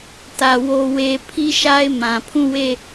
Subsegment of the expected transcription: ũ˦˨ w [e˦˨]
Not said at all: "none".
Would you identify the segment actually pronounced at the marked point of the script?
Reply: e˦˨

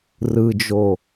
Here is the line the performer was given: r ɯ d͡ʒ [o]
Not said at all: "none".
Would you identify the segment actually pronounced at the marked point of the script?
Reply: o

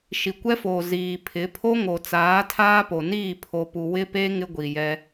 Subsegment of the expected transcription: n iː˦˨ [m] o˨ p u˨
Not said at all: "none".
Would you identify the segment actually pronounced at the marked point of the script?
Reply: pʰ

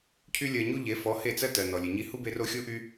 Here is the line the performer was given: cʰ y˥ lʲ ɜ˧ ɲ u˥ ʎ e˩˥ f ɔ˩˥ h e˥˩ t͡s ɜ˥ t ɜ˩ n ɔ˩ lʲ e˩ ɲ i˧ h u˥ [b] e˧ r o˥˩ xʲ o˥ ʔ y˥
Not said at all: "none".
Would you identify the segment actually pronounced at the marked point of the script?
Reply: b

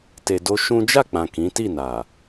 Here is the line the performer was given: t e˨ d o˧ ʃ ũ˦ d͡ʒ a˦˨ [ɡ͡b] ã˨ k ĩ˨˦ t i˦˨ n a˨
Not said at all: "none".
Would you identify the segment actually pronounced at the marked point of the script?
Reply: k͡p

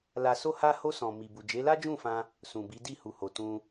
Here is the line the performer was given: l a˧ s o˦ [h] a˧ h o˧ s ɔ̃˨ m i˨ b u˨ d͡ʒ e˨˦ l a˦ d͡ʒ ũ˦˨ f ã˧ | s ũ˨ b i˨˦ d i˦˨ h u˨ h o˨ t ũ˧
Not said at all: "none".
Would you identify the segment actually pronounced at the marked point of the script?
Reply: h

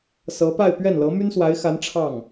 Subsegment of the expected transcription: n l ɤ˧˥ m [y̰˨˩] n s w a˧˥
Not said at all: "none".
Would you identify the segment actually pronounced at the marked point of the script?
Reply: y˥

